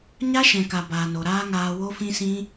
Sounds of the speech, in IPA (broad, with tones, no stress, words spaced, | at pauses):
ɲa˦ʃɛ̃˨ka˨ baː˨no˨ɾaː˦ŋaː˧ wo˦fĩ˦sĩ˦